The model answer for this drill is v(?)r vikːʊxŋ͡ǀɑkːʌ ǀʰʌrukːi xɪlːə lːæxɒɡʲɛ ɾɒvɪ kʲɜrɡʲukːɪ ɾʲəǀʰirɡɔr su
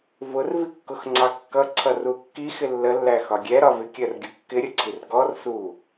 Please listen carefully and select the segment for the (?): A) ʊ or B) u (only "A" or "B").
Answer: A